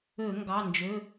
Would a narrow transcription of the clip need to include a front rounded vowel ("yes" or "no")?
yes